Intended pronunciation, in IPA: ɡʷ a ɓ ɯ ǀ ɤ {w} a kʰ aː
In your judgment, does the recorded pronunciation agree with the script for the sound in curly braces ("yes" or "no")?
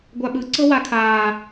yes